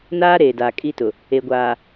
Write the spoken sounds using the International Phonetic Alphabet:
n aː˦ ɾ eː˨ d aː˨ kʼ i˦ t ʊ˨ | e˨ ɡʷ aː˨

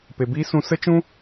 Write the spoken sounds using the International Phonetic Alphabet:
p e˨ b iː˦ s ũ˧ s ə˦ t͡ʃ ũ˦

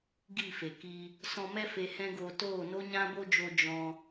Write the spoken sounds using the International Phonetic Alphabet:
ɡ i˦˨ f e˨ k i˧ | s ɔ̃˧ m ɛ˦ f e˧ h ɛ̃˦ ɡ oː˧ t oː˦˨ n o˦ ɲ ã˦ b o˦ d͡ʒ o˧ d͡ʒ ɔ̃˧

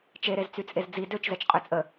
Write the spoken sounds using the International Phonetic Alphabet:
t͡ʃ e ɾ e z t͡s y t͡sʼ e z d͡z i d ø t͡ʃ z ɛ t͡ʃ qʼ ø t͡sʼ ə

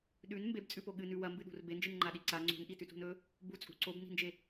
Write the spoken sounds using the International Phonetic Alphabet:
ɗ ʉ n m b e b t͡sʼ ʉ p o ɠ ɨ n ʉ w ɐ m b ɨ ɗ ṳ r b e n d͡ʒ ɨ n ŋ͡ǃ a ɗ i ǀ a ŋ͡ǀ ṳ n ʔ i t ʉ t ṳ n ɵ | b u t͡sʼ ṳ ǀ o b n i̤ n d͡ʒ e

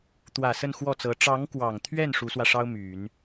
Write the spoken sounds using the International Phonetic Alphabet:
t̪ w ä˨˩ s ə˥˧ n x w ɔ˥˩ t͡s ɤ˧˥ ʈ͡ʂ ɑ˧˥ ŋ k w ɑ˨˩ ŋ t̪ʰ ɥ ɛ˥˩ n ʂ u˧˥ s w ä˧ ʂ ɑ˥ ʊ̯ m y˨˩˦ n

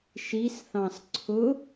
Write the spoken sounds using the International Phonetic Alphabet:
ʃ i s θ ɑ̃ s ǀʰ ʊ

